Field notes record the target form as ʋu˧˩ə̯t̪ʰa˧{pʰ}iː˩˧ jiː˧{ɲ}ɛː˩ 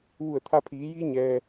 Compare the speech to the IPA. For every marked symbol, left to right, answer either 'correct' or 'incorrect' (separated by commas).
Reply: correct, correct